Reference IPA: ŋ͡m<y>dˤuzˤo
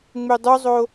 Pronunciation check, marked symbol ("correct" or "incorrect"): correct